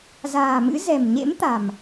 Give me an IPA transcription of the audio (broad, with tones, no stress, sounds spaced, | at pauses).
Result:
z a̤ː˨˩ m ɨ̰˧˥ z ɛ̤˨˩ m ɲ ḛ˧˥ m t̪ a̤˨˩ m